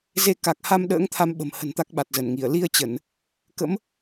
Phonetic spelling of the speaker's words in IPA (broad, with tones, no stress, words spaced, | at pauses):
ze˧ka˨˩k̚ha˧m ɗə̰ː˧˥ŋt̪ʰa˧mɓə̤˨˩mhə̤˨˩n t̪a˦˥k̚ɓa˨˩t̚zə˧˩nŋi˧˩ə̯ li˧ə̯t͡ɕə˧˩˨n | kə̰˧˥m